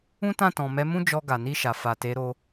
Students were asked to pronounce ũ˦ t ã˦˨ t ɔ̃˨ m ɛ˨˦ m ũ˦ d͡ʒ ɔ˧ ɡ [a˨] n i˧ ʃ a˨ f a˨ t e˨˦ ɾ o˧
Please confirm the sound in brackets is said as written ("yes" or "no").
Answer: yes